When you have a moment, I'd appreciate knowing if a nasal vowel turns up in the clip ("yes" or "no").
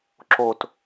no